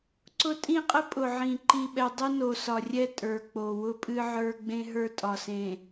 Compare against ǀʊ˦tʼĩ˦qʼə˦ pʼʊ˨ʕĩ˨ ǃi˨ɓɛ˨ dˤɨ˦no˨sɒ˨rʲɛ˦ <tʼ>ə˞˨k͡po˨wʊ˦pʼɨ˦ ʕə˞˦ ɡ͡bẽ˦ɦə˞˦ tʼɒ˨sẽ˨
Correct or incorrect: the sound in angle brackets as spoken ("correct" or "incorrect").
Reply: correct